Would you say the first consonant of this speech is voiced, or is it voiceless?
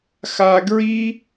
voiceless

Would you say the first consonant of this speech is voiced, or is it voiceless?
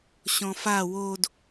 voiceless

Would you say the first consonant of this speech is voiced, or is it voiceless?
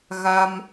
voiced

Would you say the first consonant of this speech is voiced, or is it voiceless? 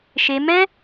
voiceless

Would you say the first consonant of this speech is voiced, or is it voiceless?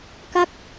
voiceless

